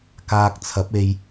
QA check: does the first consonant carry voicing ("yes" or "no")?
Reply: no